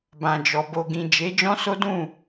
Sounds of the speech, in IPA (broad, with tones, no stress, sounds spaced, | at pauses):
b ã˨ d͡ʒ ɔ˨ b o˨ ɡ ĩ˨ d͡ʒ e˨˦ d͡ʒ ɔ̃˦ s o˦ d ũ˦˨